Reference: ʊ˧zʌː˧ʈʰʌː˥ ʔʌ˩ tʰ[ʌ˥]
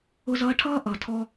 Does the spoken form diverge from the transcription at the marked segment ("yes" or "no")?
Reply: yes